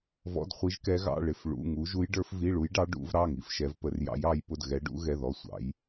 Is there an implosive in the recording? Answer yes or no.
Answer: no